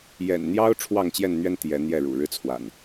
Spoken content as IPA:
j ɛ̰˨˩ n n̪ j ɑ˦ ʊ̯ ʈ͡ʂʰ w ɑ˥˨ ŋ t͡ɕ j ɛ˥˨ n n̪ ɥ ɛ˦ n t̪ j ɛ˨˦ n̪ j ɛ˥˨ ɻ ṵ˨˩ ɻ ɻ̩˦ t͡sʰ w a̰˨˩ n

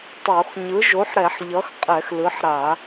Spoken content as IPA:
tˤ o˧˩˧ x ɲ ɯ˩˥ ʒ o˩˥ ħ ɾ ɛ˧˩˧ ħ ʎ ʌ˩˥ x qʼ ɛ˧˩˧ x l ɯ˩˥ ħ ɾ a˧˩˧

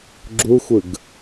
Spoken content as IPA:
ɡ͡ǁ u xʷ ɯ ɡ

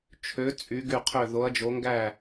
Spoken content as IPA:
t͡ʃʰ ø˨˥ t͡sʼ y˨˥ ɡ y˥˩ qʰ ø˥˩ ð o˨˥ ɐ̯ d͡ʒ o˨˥ ŋ ɡ æ˥˩

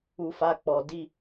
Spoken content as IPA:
u˦ f a˦ k͡p ɔ˨ d i˦

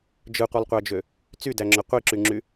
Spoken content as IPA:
d͡ʒ ɯ qʷ ɯ lˠ qʷ æ d͡ʒ ø | t͡s y d æ ŋ͡ǁ ø qʷ i ǁ y ŋ͡ǁ y

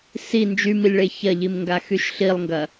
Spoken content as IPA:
s i n d͡ʒ y m i lʲ ɭ e ç ɐ ʎ i m ŋ ɡ a x y ʃ ɬ i lˠ ŋ ɡ ɐ

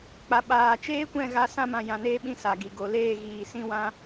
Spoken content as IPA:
k͡p a˨ ɓ aː˨ t͡ʃ eː˦ kʷ ɛ̃˦˨ ɣ a˧ s ã˧ m ã˨ j ã˨ n eː˧ ɓ ĩ˧ s a˨ ɡ i˨ ɡ o˨ l eː˦˨ ɣ iː˨ s ĩ˦ w ã˦

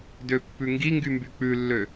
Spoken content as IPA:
d ø pː ʉ ŋ ɡ i ŋ ɡ y m b y k͡p ʉ lː ø

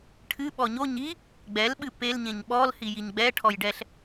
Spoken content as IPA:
ʈʰ ɨ ɓ ɔ ɲ o ɲ i | ɡ͡b ɛ l ɓ ɨ p e l ɲ ẽ ɲ ɓ ɔ l h i j i ɲ ɡ͡b ɛ ʈʰ ɔ j ɖ ɛ ɬ

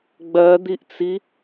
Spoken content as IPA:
ɡ͡b ɜ d̪ i ʔ t͡s i

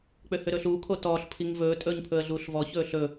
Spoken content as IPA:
k͡p ø h ø ɾ ɵː ɬ uː kʰ o t ɔː ɬ pʰ i ŋ v ɵː tʼ ɵː ɲ pʰ ɵ ə̯ ɮ uː ɬ v ɔ ç ɵː ɬ ɵ

